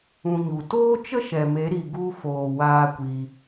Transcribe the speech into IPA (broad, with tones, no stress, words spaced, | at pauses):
ũ˧ɲu˨ toː˦t͡ʃə˦ʃɛ˨me˨˦ ɾi˧ɡu˦ foː˧waː˦kʷi˧